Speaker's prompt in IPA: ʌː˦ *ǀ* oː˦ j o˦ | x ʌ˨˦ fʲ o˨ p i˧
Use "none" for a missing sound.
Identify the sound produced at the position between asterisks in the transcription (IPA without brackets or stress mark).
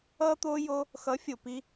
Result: t̪